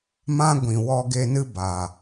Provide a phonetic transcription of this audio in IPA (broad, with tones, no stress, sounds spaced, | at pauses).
m ã˦ ɡʷ ĩ˨ w ɔ˧ ɡ e˧ n ɨ˦ b aː˨